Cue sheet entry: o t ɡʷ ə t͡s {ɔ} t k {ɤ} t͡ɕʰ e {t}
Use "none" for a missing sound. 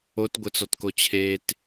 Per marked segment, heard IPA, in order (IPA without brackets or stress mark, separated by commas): ɔ, o, t